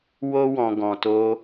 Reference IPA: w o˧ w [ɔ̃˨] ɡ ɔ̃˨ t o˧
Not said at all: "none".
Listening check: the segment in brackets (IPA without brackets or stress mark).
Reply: ɔ̃˨